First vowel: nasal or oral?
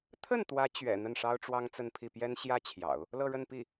oral